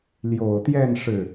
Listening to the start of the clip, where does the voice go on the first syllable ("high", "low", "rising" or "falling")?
low